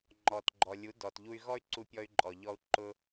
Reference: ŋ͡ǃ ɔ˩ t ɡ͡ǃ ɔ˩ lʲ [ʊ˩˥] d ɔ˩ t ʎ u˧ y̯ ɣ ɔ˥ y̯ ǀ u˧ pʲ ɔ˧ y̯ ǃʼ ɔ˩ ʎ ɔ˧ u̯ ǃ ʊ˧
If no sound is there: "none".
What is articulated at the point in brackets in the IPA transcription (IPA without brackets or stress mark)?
u˩˥